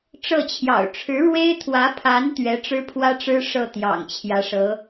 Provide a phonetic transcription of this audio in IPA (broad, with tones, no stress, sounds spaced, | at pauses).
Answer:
ʈ͡ʂ ɤ˥˩ t͡ɕʰ j ɑ̰˨˩ ʊ̯ ʈ͡ʂʰ ɻ̩˧˥ ɻ w e˥ ɪ̯ t̪ʰ w ä˧˥ pʰ a˧˥ n t̪ ɥ ɛ˧˥ ʈ͡ʂ ɻ̩˥ pʰ w ä˥ ʈ͡ʂ ɻ̩˥ ʂ ɤ˥˩ t̪ j ɑ̰˨˩ ŋ t͡ɕʰ j ä˧˥ ʂ ɤ˧˥